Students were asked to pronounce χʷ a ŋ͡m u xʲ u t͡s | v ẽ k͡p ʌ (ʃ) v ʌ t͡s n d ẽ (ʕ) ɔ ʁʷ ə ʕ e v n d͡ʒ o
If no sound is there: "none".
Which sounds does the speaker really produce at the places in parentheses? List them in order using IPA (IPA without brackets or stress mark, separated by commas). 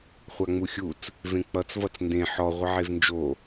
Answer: t͡s, ħ